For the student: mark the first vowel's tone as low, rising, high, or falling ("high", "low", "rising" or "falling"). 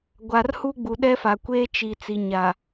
low